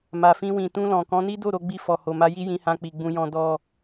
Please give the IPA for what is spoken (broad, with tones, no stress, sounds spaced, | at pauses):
m a˨ f ĩ˧ w ĩ˨ t ũ˧ l ɔ̃˨ k ɔ̃˨˦ n i˦ d o˦˨ ɾ o˧ ɡ͡b i˧ f ɔ˨ h o˨ m a˧ j i˦ j ĩ˧ h ã˧ k͡p i˨ ɡ͡b ũ˧ j ɔ̃˧ d ɔ˧